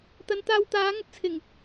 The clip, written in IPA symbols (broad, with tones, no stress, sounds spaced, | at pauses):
t̪ ɐ˨˧ n t̪ aː˧ w t̪ aː˨˥ ŋ ɐ˨˥ t̚ t͡sʰ ɪ˨˩ ŋ